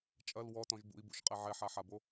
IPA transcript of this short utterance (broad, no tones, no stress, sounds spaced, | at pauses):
t͡ʃʼ ɐ l w ɔ t ɔ̃ ʒ b ṵ i̯ b ṵ ʃ qʼ ɛ ʕ ɛ ħ a ħ a b o